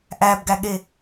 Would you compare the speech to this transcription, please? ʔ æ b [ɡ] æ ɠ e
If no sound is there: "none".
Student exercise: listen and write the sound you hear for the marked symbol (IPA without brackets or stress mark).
ɡ